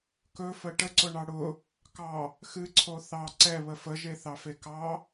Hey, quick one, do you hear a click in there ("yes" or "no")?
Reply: yes